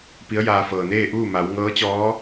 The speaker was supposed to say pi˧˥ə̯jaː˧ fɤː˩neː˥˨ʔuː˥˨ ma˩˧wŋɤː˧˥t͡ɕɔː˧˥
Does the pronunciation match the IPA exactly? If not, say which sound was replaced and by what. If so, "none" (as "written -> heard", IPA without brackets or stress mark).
none